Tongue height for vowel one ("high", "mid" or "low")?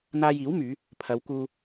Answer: low